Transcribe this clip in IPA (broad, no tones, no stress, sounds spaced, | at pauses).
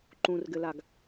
ǃ ũ r ɡ ɘ l a ɡ